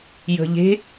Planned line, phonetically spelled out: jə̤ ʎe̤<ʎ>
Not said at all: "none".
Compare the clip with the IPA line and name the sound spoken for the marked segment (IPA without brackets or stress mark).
none